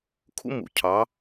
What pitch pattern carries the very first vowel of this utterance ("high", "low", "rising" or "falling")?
high